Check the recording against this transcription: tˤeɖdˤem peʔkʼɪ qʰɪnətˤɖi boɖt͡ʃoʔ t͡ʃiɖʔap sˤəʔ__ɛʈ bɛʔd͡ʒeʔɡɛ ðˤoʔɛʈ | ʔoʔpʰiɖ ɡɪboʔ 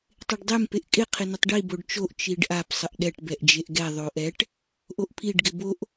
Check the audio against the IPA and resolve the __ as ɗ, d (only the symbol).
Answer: ɗ